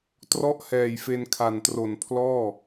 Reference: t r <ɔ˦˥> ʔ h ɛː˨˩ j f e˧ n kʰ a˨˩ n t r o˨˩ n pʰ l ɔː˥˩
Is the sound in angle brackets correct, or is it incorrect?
correct